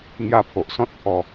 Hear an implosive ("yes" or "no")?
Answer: no